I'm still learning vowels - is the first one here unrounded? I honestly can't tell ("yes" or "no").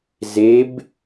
yes